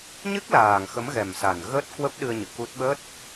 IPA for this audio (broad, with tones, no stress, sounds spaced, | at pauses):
ɲ ɨ˦˥ k̚ l aː˨˩ ŋ x ə˨˦ m ɣ ɛ˨˩ m s a˨˩ n ɣ əː˦˥ t̚ k w ə˦˥ p̚ ɗ ɨ˧ ə̯ ɲ ɨ̰˧˨ k u˦˥ t̚ ɓ ə˦˥ t̚